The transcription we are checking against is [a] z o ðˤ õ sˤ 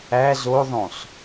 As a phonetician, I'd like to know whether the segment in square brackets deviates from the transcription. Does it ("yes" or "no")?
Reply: yes